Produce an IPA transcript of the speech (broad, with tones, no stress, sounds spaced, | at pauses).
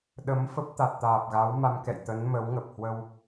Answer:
ɗ ə˨˦ m f ə˦˥ p̚ t̪ a˨˩ t̚ t̪ aː˨˩ p̚ ɣ a˨˦ w m a˧ m k ɛ̰˧˨ j t̪ ə˨˦ n m ə˨˦ w ŋ ə˨˩ p̚ h w ə˧ w